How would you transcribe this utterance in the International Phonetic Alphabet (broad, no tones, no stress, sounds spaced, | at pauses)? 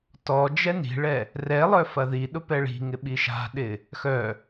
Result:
t ɔ d͡ʒ ɛ n i̤ ɭ ɛ | r ɛ lˠ œ f ɐ ð i ɗ ʊ p ɛ ɭ i̤ ŋ ɪ ɓ i ʃ a̤ ɗ ɪ | x œ